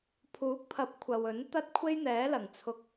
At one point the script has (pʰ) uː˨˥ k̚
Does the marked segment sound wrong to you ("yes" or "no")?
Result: no